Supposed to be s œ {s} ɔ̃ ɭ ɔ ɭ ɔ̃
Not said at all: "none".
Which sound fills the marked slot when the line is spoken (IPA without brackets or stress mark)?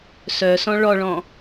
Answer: s